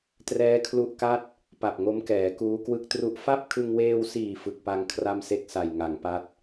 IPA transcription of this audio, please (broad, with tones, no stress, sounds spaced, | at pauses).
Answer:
t r ɛː˦˥ kʰ l u˦˥ ʔ k a˥˩ t̚ | p a˨˩ p̚ ŋ o˦˥ m k ɛː˩˦ k uː˦˥ k w ɯ˦˥ k̚ t r u˦˥ ʔ f a˥˩ p̚ kʰ ɯ˧ ŋ w eː˧ w s iː˨˩ f ɯ˨˩ k̚ p a˧ ŋ kʰ r a˥˩ m s e˥˩ k̚ s a˨˩ j ŋ a˩˦ ŋ p a˦˥ t̚